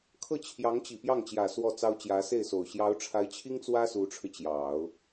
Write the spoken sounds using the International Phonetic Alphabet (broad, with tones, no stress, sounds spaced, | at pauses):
kʰ ɤ˥˩ t͡ɕʰ j ɑ˧˥ ŋ t͡ɕ i˨˩ p j ɑ˥˩ ŋ t͡ɕ j ä˨˩ s w ɔ˥˩ t͡s ɑ˥ ʊ̯ t͡ɕ j ä˧˥ s e˥˩ ɪ̯ s o˨˩ ʊ̯ ɕ j ɑ˧˥ ʊ̯ ʈ͡ʂʰ a˧˥ ɪ̯ t͡ɕʰ i˥ ŋ t͡s w ä˥ s u˧˥ ʈ͡ʂʰ ɻ̩˧ t͡ɕ j ɑ˨˩˦ ʊ̯